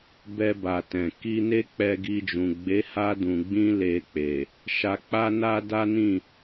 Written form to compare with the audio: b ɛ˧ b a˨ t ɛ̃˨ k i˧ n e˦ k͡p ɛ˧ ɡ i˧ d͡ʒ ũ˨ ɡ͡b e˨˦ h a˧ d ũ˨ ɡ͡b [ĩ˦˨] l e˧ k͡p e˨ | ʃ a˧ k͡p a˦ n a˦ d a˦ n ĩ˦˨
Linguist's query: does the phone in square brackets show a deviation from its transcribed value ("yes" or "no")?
yes